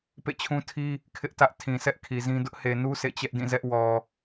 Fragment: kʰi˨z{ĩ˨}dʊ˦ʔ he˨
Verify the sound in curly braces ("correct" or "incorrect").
incorrect